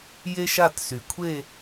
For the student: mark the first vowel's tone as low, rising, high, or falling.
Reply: high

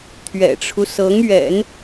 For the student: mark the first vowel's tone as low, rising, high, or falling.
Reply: low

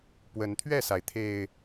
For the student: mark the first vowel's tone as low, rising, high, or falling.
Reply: rising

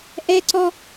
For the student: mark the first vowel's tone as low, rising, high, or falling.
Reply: high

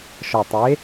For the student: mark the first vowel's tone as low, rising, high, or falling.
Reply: low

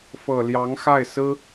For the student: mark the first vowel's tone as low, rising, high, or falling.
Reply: low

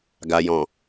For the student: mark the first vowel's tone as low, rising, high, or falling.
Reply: low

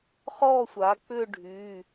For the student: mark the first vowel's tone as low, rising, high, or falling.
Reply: falling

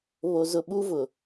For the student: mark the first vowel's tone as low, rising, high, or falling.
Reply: low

